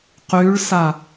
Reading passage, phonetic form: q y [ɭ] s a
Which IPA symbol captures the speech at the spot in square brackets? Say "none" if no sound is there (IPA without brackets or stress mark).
ɭ